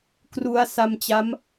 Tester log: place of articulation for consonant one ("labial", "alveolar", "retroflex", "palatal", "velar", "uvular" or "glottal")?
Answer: velar